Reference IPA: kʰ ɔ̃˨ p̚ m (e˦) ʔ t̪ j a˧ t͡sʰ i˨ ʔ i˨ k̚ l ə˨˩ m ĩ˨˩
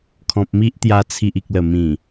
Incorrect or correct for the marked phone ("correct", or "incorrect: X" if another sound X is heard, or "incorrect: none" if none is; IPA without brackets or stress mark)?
incorrect: i˦